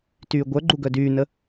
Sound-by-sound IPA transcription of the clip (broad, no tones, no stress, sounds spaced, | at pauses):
t yː ɡʷ œ ɡ͡ǃ u ɡ œ d yː n ə